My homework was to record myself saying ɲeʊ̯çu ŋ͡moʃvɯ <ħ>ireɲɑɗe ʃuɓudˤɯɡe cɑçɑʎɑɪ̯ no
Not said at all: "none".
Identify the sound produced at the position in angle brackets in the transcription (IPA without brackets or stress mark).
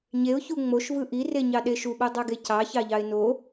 ʔ